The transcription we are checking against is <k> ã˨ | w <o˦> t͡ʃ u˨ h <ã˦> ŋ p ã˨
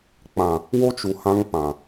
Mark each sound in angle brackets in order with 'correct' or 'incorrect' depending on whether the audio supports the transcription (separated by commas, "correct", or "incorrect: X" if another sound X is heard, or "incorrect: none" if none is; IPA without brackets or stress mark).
incorrect: k͡p, correct, correct